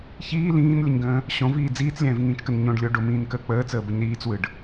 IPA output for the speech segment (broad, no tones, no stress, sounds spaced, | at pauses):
ç iː l ĩː n lʲ ə ɲ ɡ ə̃ː | ɕ õ v iː d͡z iː t͡s lʲ ɛ̃ː v ŋ ĩː t͡ʃ k ə n ɲ õ ɖ lʲ o ɖ o m ĩː n k əː k͡p əː t͡s əː b ə ɲ ɾ iː t͡s w ɯ ɖ